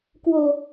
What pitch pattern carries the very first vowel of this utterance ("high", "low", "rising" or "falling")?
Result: low